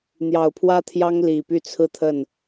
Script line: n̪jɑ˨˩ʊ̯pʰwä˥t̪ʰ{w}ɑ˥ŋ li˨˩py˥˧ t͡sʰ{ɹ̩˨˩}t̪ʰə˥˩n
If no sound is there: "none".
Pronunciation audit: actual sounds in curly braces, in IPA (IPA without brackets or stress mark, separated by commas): j, ɹ̩˥˧